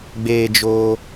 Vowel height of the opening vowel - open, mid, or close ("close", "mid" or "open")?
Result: mid